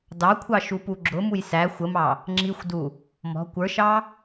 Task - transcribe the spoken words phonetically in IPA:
dɑkʷʰɑ ʃupuɡ͡ǁʊmuj sæ xʷəmɑ | ŋ͡ǁixʷdu | mɔ̤ kʷə˞ʃɑ

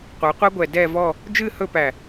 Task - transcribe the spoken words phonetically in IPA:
qʷɨ˩˧qʷɛ˥ɡʷɛ˧˩ dɛ˥˧vɔ˥˧ | d͡ʒɨ˥˧hɵ˥˧pæ˧˩

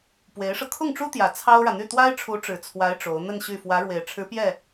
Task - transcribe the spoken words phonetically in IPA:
pwe˧˥ɪ̯ʂɤ˧ kʰʊ˥˩ŋʈ͡ʂu˥t̪jä˨˩ t͡sʰɑ˥ʊ̯ɻä˨n̪y˥˩ t̪wa˥ɪ̯ʈ͡ʂʰu˧˥ ʈ͡ʂɻ̩˨˩t͡sʰwa˧˥ɪ̯ ʈ͡ʂo˧˥ʊ̯ n̪ə˥˧nɕy˥˩ fwä˧˥ɻwe˨˩ɪ̯ʈ͡ʂʰɻ̩˧˥ pjɛ˥˩

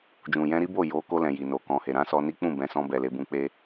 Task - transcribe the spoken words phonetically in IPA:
d͡ʒũ˨jɛ̃˧ɾi˦bo˦˨ jo˨˦ko˧lɛ̃˨ ji˨no˨kɔ̃˧he˨ ɾã˨˦sɔ˧ni˦ k͡pũ˦˨bɛ̃˨˦sɔ̃˧bɛ˨ le˧bũ˧ k͡pe˦

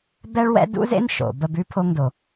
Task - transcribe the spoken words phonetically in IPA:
bɛ˥ɭwɛ̰˥ dṵ˥zḛ˥n ʃo̰˩bə˧b ʉ˥ pʰo˧ŋdo˩

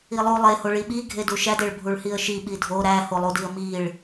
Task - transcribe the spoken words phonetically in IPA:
ilˠu lˠeho ɭiɓi ɡʱeduʃædeɭ bʱuɭhiə̯ʃi ɓidʱo ɾæholˠudiə̯ miɭ

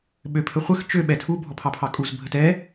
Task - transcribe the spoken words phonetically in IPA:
ɓøpʰəχʷəx t͡ʃø ɓɛtʰu bʱɔpʰɑpʰɑkʼuz bʱətɛ

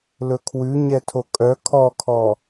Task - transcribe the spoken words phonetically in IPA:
lɵkʰwʉ ɲɛtʰokʼœ kʰɔkʰɔ

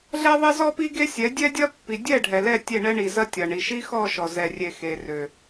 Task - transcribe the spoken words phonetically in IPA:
ɮɛ˦ðˤe˦ zɔ˦pi˦ ɡe˦sʲɛ˨˦ dʲɛ˦dʲɐ˦pːi˨ dʲɛ˦˨ ɖʱɛ˨lɛ˦˨ tʲe˦˨ɳɛ˦ɳi˨zɐ˦ tʲɐ˨ɳi˨ ʃi˦xɔ˦˨ ʃɔ˨zɛ˨ rʲe˨ xe˨rø˨

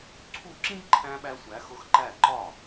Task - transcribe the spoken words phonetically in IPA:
ǀʰu˦˨ǁĩ˥ɡ ǃʰæ̃˥ɓæ˥sʷæ˧˥ xʊ˧˥xǃæ˦˨ ǃɒ˦˨

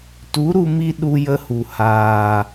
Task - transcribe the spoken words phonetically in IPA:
tu˨˦ɾu˧mi˧ ɗu˧jə˧hu˨ haː˨

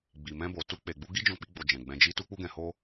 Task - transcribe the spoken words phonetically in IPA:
ɡ͡bi˨mɛ̃˧bo˨ tu˧k͡pe˨ɡ͡bu˧ ɡi˦d͡ʒɔ̃˧k͡pi˧ ɡ͡bo˨ d͡ʒɛ̃˨ ɡ͡bɛ̃˧d͡ʒi˦ tu˦k͡pu˦ɡɛ̃˧ho˦

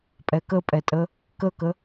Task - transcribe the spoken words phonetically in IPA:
pʼɛkəpʼɛtʼə | kəkə

